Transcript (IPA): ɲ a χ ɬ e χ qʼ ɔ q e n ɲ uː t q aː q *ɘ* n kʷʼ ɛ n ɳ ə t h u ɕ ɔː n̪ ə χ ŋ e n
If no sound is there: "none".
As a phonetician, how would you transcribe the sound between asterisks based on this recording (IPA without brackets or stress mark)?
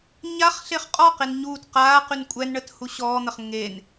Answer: ʉ